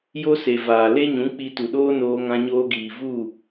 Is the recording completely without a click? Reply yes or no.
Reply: yes